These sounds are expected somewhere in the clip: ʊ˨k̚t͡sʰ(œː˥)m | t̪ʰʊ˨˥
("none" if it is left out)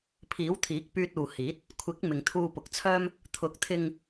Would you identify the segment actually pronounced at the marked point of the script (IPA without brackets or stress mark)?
œː˥